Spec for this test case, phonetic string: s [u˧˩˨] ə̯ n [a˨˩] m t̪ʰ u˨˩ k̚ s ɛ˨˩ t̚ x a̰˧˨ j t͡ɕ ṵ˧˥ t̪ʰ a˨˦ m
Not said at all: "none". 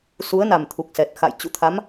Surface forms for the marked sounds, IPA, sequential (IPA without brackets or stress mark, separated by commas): u˨˦, a˨˩